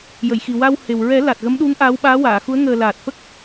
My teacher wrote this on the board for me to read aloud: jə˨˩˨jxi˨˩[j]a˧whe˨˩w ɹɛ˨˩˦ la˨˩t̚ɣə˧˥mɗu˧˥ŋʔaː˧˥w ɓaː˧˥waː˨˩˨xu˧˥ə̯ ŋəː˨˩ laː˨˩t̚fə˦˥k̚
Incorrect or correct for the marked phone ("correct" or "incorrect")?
incorrect